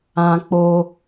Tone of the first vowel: high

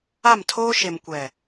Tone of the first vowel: falling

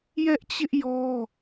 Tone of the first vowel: high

